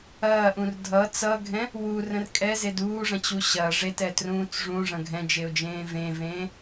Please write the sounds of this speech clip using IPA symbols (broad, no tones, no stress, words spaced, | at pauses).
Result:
ɐːʔũr dʱʌ t͡sʌɡʱɛ̃ | wurə̃r kʼɛzed uːʐɐ̃t͡ɕu ɕɐ ʐetɛtrũːt͡s ʐũʐɐ̃ ɡʱɛ̃d͡ʒeʊ̯d͡ʒẽː vẽvẽː